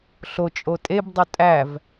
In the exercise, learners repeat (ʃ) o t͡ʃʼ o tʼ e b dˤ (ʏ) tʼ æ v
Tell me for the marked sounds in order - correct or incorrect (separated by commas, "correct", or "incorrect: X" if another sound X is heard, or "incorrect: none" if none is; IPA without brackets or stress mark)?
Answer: incorrect: ɬ, correct